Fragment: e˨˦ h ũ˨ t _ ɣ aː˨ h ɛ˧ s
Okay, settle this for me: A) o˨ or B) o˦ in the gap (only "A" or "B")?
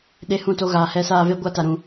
A